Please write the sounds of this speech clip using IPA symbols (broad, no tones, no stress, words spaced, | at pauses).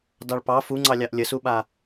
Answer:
dɑɭpɑ fuŋ͡ǀɑlʲɑʔ lʲəsuɓa